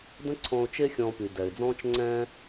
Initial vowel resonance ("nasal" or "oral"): nasal